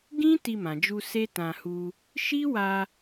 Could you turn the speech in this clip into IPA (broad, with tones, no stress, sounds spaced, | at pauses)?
ɡ ĩ˦ t i˧ m ã˨ d͡ʒ u˧ s e˦ t ã˧ h u˧ | ʃ i˦ w a˧